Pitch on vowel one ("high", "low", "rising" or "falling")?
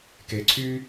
low